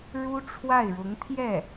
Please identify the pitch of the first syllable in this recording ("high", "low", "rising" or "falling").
high